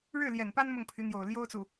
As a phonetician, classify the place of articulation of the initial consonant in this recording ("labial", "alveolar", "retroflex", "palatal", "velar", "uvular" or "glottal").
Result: retroflex